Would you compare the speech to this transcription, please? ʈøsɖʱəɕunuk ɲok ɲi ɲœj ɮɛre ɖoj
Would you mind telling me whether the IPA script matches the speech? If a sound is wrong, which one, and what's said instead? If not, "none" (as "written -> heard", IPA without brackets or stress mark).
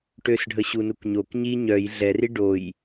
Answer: e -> i